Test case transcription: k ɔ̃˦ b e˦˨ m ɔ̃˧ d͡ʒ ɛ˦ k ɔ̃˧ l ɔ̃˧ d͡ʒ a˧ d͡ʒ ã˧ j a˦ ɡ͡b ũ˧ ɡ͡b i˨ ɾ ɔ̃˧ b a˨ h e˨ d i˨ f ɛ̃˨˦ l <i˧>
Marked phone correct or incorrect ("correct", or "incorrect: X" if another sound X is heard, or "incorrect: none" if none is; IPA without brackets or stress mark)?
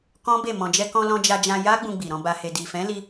correct